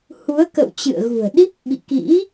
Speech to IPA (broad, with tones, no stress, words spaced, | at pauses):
hu˨˦ə̯kə̰˧˨w t͡ɕɨ̰˧˨ə̯ɣṳ˨˩ə̯ɗi˦˥p̚ ɓḭ˧˨kḭ˧˥